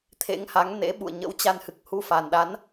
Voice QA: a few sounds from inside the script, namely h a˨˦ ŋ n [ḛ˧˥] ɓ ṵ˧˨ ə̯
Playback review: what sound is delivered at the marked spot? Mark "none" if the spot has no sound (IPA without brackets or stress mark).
ḛ˧˥